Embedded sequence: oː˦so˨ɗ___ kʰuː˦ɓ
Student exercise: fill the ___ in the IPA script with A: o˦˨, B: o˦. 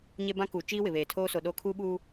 A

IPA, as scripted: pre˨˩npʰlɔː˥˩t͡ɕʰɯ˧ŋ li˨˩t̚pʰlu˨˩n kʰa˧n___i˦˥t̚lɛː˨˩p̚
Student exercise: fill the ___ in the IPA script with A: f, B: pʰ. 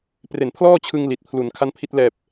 B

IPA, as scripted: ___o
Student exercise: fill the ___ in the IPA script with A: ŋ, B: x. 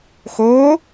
B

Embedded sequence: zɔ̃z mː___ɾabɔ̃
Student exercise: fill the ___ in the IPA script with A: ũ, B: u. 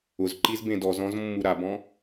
B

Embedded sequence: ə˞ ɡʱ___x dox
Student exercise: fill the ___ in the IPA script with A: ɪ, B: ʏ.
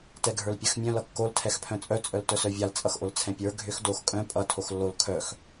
B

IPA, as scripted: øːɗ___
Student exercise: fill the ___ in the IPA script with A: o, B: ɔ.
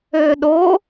A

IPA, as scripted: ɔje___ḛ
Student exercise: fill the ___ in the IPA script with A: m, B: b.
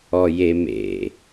A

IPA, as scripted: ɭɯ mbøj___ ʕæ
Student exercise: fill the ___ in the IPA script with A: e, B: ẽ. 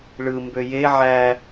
A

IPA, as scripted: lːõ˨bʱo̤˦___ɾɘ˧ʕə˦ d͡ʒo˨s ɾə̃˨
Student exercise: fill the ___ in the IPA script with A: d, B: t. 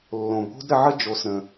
A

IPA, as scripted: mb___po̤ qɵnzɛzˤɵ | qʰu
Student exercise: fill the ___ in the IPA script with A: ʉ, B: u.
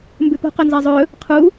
A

